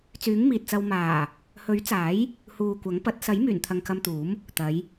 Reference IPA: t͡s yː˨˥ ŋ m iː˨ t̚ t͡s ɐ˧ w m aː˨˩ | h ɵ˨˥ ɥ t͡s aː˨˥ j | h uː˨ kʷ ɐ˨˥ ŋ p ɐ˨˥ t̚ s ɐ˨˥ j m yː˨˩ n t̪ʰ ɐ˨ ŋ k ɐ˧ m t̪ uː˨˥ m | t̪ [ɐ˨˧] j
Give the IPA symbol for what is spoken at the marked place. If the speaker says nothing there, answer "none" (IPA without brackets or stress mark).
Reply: ɐ˨˧